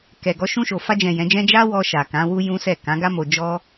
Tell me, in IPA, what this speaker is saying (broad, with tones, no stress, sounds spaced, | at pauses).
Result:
k ɛ˨ ɡ ɔ˧ ʃ ũ˧ ʃ o˨ f a˧ d͡ʒ ɛ̃˨ j ɛ̃˨˦ d͡ʒ ɛ̃˦ d͡ʒ a˦ w ɔ˧ ʃ a˨ k ã˨˦ w u˦ j ũ˦ s ɛ˦˨ k ã˨˦ ɡ a˦ m o˧ d͡ʒ ɔ˦